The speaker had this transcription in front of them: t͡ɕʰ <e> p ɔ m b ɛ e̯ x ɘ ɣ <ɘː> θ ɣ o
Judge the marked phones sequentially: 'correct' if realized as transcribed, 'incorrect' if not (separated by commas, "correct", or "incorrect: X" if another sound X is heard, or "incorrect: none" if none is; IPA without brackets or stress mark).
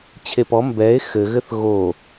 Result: correct, incorrect: ɘ